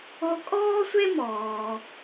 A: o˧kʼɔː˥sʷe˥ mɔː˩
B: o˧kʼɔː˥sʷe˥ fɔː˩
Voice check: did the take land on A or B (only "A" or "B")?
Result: A